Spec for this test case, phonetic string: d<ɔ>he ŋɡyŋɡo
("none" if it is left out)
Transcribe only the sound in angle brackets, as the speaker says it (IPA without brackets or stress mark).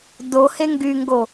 o